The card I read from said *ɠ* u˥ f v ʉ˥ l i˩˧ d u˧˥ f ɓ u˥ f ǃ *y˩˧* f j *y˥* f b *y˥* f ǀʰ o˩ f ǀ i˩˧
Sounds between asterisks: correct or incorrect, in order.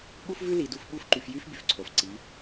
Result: correct, incorrect: y˧, correct, incorrect: y˩

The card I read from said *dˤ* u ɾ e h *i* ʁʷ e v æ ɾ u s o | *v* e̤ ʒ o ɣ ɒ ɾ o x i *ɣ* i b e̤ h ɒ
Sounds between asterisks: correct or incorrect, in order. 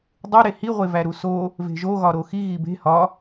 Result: correct, correct, correct, correct

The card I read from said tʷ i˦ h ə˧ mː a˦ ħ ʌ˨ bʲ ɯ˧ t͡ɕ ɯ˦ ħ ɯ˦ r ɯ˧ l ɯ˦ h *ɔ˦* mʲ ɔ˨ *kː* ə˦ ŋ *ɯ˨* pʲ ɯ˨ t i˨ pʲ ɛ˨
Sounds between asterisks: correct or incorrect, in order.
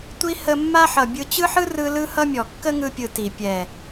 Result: incorrect: ʌ˦, correct, incorrect: ɯ˧

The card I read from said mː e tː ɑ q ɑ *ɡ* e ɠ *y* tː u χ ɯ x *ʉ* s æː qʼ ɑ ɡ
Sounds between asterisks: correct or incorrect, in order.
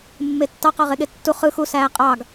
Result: incorrect: ʁ, incorrect: e, incorrect: u

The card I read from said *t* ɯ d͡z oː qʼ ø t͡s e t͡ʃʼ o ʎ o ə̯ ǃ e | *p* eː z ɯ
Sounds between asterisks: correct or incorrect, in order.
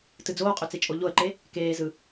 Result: correct, incorrect: k

